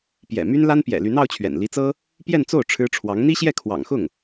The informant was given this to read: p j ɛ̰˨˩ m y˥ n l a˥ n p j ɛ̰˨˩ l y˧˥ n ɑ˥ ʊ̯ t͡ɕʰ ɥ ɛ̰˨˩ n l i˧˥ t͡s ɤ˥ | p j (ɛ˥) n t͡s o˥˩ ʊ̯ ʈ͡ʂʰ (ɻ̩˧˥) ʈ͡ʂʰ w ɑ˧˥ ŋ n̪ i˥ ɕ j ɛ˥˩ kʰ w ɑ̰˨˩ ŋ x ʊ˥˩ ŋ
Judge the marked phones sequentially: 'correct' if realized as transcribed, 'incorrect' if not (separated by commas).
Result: incorrect, incorrect